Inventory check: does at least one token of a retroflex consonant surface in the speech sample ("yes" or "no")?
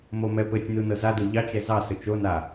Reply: no